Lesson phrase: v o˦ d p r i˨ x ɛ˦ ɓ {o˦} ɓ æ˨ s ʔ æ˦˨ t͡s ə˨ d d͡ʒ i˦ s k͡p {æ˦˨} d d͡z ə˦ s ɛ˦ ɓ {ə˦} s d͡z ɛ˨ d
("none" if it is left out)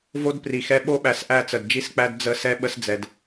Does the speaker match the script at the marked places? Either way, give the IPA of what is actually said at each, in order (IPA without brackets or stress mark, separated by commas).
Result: o˦, æ˦, ə˦